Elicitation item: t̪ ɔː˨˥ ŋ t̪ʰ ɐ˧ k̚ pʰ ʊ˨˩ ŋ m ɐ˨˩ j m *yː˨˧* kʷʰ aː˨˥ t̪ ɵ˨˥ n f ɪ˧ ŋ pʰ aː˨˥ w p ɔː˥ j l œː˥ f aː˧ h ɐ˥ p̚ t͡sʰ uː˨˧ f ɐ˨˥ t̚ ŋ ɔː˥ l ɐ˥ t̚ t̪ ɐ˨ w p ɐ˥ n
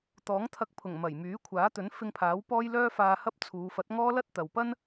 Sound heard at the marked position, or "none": yː˨˥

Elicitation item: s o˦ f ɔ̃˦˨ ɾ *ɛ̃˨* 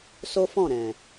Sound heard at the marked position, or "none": ɛ̃˨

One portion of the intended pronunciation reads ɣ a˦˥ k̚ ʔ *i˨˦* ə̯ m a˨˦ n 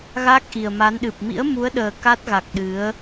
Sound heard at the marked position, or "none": i˨˩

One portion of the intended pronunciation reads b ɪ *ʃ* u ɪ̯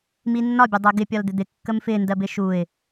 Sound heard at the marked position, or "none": ʃ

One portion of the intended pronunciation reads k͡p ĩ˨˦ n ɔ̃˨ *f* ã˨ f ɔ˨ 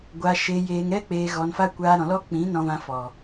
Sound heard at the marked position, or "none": v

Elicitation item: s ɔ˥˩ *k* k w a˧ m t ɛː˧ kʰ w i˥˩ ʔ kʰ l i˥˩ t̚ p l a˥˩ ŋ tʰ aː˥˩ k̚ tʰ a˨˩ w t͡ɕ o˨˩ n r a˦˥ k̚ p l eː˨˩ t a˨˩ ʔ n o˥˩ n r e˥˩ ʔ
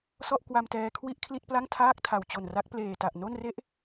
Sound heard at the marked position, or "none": ʔ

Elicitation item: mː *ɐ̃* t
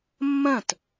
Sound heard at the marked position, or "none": ɐ̃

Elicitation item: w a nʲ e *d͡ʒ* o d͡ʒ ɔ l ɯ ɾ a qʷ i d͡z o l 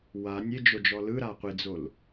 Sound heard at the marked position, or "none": d͡ʒ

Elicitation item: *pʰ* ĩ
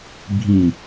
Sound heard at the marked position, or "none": bʱ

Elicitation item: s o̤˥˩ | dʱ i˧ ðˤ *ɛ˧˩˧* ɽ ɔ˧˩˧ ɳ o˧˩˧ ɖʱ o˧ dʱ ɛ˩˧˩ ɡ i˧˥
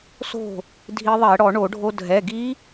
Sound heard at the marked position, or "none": ɛ˧˩˧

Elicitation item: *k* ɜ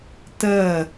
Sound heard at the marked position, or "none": t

